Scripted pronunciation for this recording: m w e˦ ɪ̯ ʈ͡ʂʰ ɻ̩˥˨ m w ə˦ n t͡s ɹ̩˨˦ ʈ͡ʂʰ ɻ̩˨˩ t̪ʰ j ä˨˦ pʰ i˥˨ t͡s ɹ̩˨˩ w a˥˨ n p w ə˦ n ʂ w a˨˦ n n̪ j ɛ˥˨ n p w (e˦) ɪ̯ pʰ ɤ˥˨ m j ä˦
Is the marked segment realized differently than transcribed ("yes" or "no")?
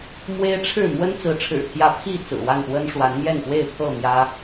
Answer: yes